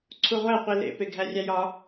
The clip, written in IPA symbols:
ǀʰ u ʁʷ æ qʷ i l ḛ p e ɡʱ æ rʲ æ j ɒ

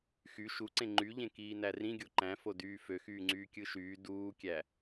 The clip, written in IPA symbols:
x y ʃ u ǀ ẽ ŋ͡ǃ y ʎ ẽ k iː n æ r ĩ ɡʲ o ǃ æ̃ f o d yː f ø x yː ŋ͡ǀ yː kʲ ɯ ʃ yː d uː kʲ æ

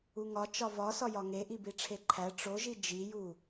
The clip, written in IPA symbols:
u ŋ ɒ t͡ʃ ɒ v ɒ s ɒ j ɒ ŋ e ʔ i b i ʈ͡ʂʰ e ǃʰ æ ʈ͡ʂ o ʒ i d͡ʒ i j u

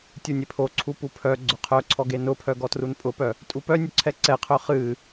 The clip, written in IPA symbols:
tʲ u nʲ e pʰ o ǀʰ u p u pʰ œ ɡ͡ǀ ʊ qʰ œ ǀʰ ɔ ɡ e n ʊ pʰ œ ɡ ɔ t r u n pʼ ʊ p œ | tʼ u p œ nʲ ʊ ǀʰ ɛ ǀ ɛ qʰ œ χ ɨ

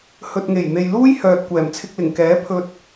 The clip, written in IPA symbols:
h ɵ˨ t̚ ŋ e˨˩ j n̪ e˨ j l uː˥ j h œː˨ t̚ kʷ ɛː˨˩ m t͡sʰ ɪ˧ k̚ l ɪ˨˩ ŋ k ɛː˨˥ pʰ ɵ˧ t̚

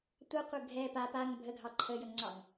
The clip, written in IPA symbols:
tʷ a qʷ ə ɡʱ ɛ p a p a ŋ bʱ ə ɡʱ ɑ ǃʰ ə j ə ŋ ŋ͡ǀ ɑ ŋ

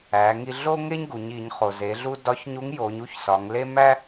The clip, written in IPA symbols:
æ˩˧ ŋ i˧ ɮ o˥ ŋ e˥ ɲ ɡ u˩˧ ɲ i˩˧ ɲ χ o˩ z e˩˧ ɮ u˧ d ɒ˧˥ ç ɲ u˧˥ ŋ j o˩˧ ɲ u˥ ç s ɒ˩˧ ŋ l e˥ m æ˥

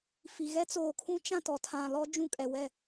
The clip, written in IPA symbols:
f i˨ ɣ ɛ˦ t͡s oː˨ kʰ ũ˦ t͡ʃ ã˦˨ t ɔ˨ tʰ ã˨ l ɔ˦ d͡ʒ ũ˦˨ kʼ ɛ˨ w ɛ˦˨

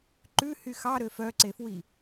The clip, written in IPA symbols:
ǃ ʉ h y x ɑ ɾ ø f œ ǀ e f w i

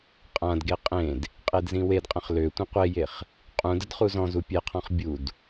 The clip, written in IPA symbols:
qʼ ã d ɡ e qʼ ẽ d | qʼ e d z ĩ w e d qʼ ə̃ χ l ø tʷ ĩ qʷ e j e χ | qʼ ũ d ə d χ u z ɔ̃ z u pʲ e qʰ ɔ̃ χ bʲ u d

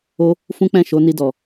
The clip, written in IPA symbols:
o˦ | f ũ˦ k͡p ɛ̃˦˨ ʃ o˨˦ n i˧ d ɔ˨

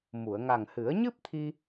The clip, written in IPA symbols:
m u˨˩˨ ə̯ ŋ a˨˩ ŋ h ɨ˨˩˦ ə̯ ɲ ɨ˦˥ p̚ t̪ʰ i˧

